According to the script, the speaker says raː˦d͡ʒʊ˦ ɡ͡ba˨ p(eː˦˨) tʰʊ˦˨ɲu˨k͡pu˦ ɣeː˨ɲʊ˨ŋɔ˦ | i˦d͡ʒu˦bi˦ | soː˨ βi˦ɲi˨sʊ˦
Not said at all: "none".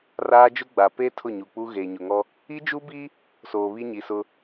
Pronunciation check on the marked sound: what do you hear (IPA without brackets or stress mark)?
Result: eː˦